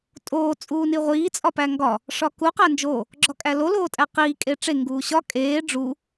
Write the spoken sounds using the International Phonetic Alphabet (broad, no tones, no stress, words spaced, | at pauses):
tʼoː t͡sʼuːniʁʷiː t͡sʼɒpæŋɡɒ | ʂɒku qænd͡ʒo | ɡ͡ǁɒkʼælo loːtʼæqiː kʼeʈ͡ʂe ŋɡuːɕɒ kʼeː ɖ͡ʐu